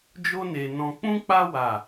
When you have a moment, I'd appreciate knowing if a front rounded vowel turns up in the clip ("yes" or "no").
no